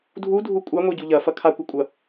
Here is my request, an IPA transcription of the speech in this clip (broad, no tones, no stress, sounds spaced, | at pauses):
dʱ u dʱ u kʷʼ a ŋʷ e ɟ u ʎ ɐ f ɐ kʰ a kʷ ɐ kʷʼ ɐ